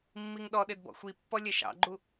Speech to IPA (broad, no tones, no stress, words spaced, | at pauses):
mːiŋɗɔɗɪd bɔ̰xʷipːɔ lʲɛʃɑ̰ɡ͡ǃu